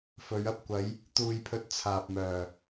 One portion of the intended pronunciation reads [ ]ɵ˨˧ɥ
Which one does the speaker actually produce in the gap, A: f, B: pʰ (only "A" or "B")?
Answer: A